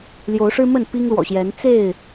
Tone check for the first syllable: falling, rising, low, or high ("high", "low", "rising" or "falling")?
rising